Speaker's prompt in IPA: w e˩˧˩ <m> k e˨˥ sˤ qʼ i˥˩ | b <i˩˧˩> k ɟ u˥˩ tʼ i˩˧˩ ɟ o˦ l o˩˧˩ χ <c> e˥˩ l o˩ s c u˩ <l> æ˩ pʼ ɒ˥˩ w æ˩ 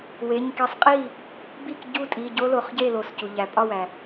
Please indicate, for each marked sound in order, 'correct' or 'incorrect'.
incorrect: ɲ, incorrect: i˥˩, incorrect: ɟ, incorrect: ʎ

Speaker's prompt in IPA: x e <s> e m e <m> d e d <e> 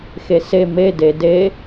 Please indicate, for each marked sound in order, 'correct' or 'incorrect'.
correct, incorrect: none, correct

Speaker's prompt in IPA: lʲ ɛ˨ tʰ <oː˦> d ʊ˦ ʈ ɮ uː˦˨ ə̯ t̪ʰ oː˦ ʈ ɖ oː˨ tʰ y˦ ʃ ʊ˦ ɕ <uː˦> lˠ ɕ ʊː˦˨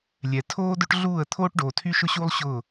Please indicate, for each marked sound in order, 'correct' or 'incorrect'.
correct, correct

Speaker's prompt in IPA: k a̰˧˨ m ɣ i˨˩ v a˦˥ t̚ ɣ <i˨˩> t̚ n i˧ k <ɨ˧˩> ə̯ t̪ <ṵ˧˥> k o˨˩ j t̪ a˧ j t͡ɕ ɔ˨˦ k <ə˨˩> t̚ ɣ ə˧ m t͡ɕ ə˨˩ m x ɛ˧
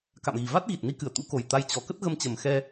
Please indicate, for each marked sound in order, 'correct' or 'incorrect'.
correct, correct, correct, incorrect: ə˦˥

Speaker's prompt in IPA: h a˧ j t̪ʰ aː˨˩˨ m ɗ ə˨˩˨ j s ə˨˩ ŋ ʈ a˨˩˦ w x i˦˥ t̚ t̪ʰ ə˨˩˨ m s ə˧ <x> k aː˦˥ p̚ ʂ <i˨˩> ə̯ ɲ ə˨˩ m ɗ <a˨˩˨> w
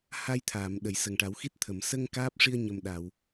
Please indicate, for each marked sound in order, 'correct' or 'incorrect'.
incorrect: ŋ, incorrect: i˧, correct

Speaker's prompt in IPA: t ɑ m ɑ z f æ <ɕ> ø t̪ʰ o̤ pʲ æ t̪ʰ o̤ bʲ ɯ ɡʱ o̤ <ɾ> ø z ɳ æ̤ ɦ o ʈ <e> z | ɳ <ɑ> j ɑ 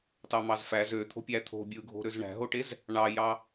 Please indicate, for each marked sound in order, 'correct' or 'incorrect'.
incorrect: z, correct, correct, correct

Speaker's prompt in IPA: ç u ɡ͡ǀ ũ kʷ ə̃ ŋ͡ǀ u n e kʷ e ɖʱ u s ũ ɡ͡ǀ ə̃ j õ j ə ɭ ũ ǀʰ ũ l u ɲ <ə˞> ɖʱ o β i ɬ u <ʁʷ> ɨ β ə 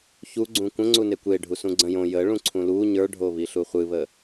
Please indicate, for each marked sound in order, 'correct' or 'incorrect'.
correct, incorrect: χʷ

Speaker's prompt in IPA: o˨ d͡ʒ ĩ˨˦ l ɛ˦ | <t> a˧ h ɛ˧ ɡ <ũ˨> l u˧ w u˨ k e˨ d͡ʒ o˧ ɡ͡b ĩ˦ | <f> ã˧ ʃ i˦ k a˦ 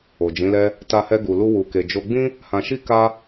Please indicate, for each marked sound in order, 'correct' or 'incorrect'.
correct, incorrect: u˨, incorrect: h

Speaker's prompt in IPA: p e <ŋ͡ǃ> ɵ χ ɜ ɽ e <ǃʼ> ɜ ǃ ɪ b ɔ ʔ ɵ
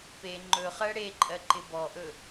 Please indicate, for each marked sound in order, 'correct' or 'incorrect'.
correct, correct

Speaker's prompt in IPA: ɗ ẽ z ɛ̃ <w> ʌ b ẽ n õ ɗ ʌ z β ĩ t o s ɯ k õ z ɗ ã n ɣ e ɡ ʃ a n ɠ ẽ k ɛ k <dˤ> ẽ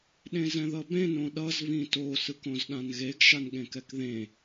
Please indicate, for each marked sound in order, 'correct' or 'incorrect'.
incorrect: ð, incorrect: ð

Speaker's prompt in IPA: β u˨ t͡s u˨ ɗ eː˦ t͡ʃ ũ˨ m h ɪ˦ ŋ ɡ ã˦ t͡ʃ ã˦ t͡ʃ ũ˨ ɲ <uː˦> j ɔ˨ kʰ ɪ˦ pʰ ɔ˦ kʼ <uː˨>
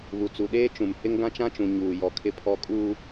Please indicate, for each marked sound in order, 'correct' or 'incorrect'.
incorrect: uː˨, incorrect: uː˦

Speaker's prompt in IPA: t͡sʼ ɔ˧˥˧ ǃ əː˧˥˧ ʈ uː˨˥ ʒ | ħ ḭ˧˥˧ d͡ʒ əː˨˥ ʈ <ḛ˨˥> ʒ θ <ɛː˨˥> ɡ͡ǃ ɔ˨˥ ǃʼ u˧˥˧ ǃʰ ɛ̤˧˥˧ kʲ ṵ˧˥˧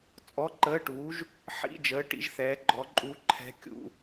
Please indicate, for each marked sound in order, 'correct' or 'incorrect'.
incorrect: ḭ˨˥, correct

